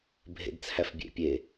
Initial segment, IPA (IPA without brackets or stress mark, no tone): bʱ